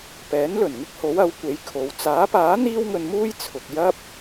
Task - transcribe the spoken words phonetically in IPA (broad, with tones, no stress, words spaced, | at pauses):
pɛː˨˥nlɵ˨˩n ŋɪ˥k̚ho˨˥w ɐ˨˥wkʷe˨˥j kʰo˨˧w t͡saː˨˥paː˨˥ n̪iː˥wŋɵ˧nmuː˥j t͡sʰʊ˨k̚ jɐ˥p̚